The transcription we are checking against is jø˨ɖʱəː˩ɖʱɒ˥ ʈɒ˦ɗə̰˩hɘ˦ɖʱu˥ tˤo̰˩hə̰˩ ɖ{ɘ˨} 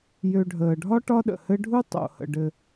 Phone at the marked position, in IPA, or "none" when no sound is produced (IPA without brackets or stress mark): ɘ˨